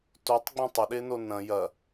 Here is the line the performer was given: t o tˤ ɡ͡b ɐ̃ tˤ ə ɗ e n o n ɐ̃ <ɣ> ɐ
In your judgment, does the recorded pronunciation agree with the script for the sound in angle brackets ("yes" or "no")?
no